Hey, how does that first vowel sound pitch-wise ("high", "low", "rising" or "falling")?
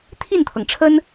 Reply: falling